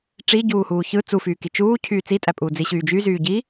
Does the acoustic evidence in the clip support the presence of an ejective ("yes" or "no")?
yes